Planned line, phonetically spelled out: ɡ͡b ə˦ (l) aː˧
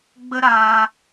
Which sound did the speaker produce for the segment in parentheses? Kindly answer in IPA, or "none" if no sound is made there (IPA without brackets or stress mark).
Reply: ɾ